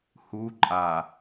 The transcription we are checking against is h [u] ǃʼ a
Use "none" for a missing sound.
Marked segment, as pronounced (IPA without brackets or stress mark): u